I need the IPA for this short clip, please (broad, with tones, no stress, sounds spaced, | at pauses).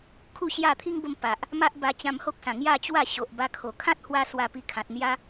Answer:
kʰ u˥˧ ɕ j a˥˧ t̪ʰ i˦ ŋ b ə˧ m p a˨ ʔ | m a˦ ʔ b a˧ t͡ɕ ã˧ m h o˦ k̚ s ã˨˩ ŋ j a˥˧ t͡ɕ w a˥˧ ɕ o˨ ʔ b a˧ kʰ o˨˩ kʰ ã˦ t̚ h w a˦ s w a˧ p i˧ kʰ ã˨ t̚ n̪ j a˧